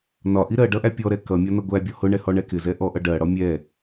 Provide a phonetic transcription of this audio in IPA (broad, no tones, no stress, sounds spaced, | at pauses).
n ɒ ʔ i ɾ ɜ ɖ ʌ ʔ æ pʲ ɔ ɾ ɛ k ʌ mʲ ɒ n ʌ ɡʷ æ bʲ ɔ h ʊ ɳ ɛ h ɔ ɳ ɛ k ɪ z ɛ ʔ ɔ ʔ ʌ ɖ ɜ ɽ ɔ mʲ ɛ